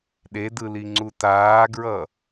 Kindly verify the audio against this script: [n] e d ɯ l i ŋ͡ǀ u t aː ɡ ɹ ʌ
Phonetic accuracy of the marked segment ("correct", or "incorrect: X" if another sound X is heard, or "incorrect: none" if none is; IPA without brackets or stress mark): incorrect: ɗ